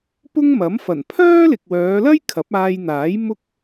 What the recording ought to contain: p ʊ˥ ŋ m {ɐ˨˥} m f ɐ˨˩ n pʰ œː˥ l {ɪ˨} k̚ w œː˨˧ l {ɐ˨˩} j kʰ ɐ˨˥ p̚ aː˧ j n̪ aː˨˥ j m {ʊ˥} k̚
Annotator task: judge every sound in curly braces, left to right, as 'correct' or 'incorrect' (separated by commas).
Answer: correct, correct, incorrect, correct